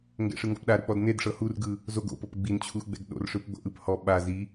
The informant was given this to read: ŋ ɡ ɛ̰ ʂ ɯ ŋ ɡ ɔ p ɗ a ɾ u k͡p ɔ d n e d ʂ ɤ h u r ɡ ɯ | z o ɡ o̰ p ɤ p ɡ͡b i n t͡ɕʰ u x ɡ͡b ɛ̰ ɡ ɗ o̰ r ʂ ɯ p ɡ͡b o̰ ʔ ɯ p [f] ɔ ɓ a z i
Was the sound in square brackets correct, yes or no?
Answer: no